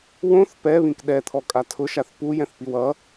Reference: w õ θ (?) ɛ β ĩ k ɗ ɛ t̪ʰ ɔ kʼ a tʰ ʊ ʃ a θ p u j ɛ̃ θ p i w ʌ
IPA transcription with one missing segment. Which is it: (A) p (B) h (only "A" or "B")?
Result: A